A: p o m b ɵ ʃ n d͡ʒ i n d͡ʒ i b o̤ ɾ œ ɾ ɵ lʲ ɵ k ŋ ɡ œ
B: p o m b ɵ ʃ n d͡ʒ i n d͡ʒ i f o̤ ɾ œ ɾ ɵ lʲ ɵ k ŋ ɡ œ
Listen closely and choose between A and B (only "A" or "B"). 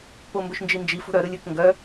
B